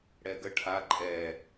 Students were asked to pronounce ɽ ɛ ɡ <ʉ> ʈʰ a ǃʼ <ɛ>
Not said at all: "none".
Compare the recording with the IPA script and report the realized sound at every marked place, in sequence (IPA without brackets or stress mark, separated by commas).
ə, ɛ